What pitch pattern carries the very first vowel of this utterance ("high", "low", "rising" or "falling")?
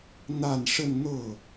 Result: falling